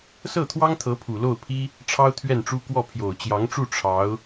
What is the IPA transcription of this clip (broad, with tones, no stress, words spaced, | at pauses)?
sɤ˥˩t̪ʰwɑ˥ŋt̪ʰɤ˧˥ pʰu˨˩lo˥˩ʊ̯pʰi˥ | ʈ͡ʂʰɑ˥ʊ̯t̪ʰɥɛ˥˩nʈ͡ʂu˥ kwɔ˥˩ pʰjo˨˩ʊ̯t͡ɕjɑ˧˥ŋʈ͡ʂu˥˩ ʈ͡ʂʰɑ˧˥ʊ̯